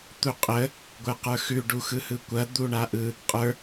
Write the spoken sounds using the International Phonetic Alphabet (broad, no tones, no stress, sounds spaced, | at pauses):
t̪ u qʼ ə | ɡʷ ə˞ q ə˞ x ʉ ɖ u x ɯ h ɯ kʷ ɐ d̪ u ɳ a ʔ ɯ | qʼ ə˞